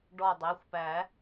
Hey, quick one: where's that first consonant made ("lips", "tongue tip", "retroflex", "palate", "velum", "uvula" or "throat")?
retroflex